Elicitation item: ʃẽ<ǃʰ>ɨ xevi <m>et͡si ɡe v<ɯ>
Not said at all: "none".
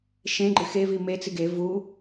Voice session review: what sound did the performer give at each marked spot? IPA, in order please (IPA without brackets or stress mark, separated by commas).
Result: ɡ͡ǃ, m, u